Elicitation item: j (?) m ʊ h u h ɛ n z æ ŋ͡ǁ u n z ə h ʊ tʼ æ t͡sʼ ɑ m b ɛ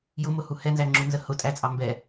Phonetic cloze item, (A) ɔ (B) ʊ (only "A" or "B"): B